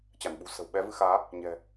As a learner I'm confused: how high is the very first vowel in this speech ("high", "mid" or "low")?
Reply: low